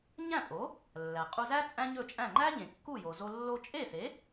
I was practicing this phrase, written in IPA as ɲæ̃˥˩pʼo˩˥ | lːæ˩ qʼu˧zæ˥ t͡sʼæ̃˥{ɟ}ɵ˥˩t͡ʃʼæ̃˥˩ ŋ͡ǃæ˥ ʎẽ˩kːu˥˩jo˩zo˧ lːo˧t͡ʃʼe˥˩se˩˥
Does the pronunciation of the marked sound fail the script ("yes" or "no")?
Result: yes